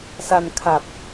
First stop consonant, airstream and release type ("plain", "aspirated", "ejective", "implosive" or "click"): aspirated